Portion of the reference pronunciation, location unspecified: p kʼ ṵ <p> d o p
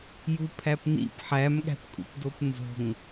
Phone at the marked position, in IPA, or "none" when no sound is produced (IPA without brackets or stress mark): p